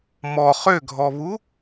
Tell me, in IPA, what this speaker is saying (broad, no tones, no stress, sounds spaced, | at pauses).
m ɔ χ ø ɡʱ ɔ β u